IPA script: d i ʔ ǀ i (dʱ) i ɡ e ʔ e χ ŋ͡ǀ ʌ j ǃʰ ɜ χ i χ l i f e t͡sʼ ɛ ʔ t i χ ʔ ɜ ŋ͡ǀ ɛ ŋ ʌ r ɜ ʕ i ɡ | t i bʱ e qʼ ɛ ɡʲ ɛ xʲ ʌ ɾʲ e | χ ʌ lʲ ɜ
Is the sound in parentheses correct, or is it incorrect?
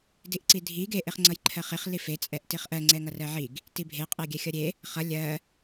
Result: correct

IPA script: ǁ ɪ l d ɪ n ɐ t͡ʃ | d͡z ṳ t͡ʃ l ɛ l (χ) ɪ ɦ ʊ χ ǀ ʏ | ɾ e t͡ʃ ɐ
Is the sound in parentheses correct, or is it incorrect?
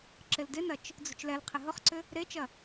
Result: incorrect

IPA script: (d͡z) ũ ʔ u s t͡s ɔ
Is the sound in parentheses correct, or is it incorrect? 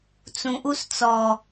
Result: incorrect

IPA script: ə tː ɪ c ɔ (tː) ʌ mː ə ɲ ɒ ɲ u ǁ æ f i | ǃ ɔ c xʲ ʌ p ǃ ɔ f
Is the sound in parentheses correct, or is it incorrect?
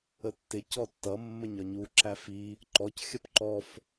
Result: correct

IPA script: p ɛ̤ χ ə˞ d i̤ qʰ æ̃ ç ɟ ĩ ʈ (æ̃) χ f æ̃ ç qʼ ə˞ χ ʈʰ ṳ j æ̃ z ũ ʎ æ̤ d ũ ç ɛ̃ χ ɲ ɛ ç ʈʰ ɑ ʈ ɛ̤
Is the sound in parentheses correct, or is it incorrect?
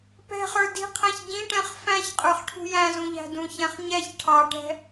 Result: incorrect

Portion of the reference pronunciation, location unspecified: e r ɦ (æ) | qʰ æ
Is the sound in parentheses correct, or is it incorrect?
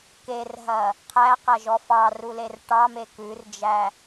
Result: incorrect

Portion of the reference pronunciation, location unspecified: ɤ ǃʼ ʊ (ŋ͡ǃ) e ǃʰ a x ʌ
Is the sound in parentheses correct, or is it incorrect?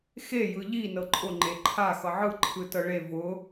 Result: correct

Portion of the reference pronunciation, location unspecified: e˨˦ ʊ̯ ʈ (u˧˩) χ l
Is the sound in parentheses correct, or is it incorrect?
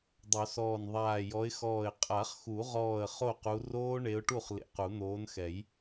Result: incorrect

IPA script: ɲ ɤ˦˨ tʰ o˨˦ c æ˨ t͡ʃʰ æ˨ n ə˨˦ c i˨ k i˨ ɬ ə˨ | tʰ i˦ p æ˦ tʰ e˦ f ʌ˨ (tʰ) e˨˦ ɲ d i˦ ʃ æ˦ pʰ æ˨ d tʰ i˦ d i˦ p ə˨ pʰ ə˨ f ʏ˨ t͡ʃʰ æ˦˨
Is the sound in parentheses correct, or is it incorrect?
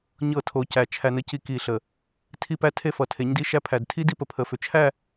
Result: correct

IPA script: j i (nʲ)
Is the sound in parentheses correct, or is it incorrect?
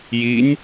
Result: correct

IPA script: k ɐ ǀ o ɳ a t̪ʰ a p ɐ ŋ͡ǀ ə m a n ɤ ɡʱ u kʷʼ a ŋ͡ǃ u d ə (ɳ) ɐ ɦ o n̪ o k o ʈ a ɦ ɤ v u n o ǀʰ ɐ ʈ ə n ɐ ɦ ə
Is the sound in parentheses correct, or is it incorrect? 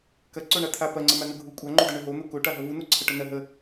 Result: correct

